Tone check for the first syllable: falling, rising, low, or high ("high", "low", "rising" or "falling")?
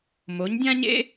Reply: rising